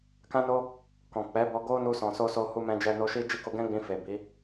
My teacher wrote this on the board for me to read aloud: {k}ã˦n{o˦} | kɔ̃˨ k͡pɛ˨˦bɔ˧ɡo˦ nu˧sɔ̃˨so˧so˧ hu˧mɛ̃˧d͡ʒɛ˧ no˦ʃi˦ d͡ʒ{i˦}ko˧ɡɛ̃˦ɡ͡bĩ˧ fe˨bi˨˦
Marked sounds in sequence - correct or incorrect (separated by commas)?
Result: correct, correct, incorrect